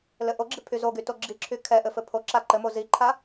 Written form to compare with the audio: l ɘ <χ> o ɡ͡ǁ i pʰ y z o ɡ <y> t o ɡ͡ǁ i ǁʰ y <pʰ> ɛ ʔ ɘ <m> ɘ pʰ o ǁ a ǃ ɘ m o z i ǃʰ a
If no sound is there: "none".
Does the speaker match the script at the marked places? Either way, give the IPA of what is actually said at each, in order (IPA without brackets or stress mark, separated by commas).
ʔ, y, kʰ, f